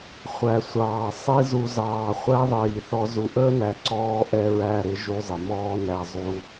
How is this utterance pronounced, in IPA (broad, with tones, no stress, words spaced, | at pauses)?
χʷæ˨sʷɑː˨ sˤi˧zu˨ zɑː˨ χʷæ˦ðˤiː˨θɔ˧ zu˨ʔəː˦næ˨ ǀɔː˦ʔɛ˦ɹæ˦˨ɾɪ˦ ʒu˧zˤɪ˨mɔː˦næ˧ zˤu˧